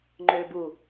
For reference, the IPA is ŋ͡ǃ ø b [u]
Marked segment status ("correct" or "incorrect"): correct